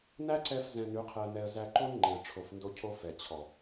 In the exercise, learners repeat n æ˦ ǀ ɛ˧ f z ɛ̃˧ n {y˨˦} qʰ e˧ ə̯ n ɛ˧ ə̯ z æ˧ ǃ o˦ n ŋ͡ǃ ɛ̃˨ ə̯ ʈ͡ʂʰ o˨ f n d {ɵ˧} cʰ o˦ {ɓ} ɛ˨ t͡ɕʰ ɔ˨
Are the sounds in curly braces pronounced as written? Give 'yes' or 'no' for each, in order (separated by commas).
yes, no, no